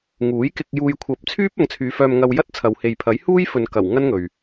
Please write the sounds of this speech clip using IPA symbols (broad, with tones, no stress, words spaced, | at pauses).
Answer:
ŋuː˨˥jkɪ˧k̚ juː˧jkʷʰɐ˨˥p̚ t͡sʰyː˥p̚ ɐ˨˧ŋt͡sʰyː˨˧ fœː˧mŋɐ˧wjɐ˥t̚ t͡sʰɐ˨whe˨jpʰɐ˨˥jhuː˥j fɵ˨nkɐ˨˩w ŋɐ˥nŋɵ˨ɥ